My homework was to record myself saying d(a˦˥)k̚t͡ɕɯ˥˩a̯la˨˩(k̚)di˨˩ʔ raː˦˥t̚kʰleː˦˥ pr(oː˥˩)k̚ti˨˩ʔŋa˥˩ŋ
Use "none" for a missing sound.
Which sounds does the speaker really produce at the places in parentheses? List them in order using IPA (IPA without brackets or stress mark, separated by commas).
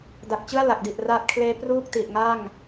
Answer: a˨˩, k̚, uː˥˩